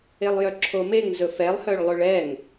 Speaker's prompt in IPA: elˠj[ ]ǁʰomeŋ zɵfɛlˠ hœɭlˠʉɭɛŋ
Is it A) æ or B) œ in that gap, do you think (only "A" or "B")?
B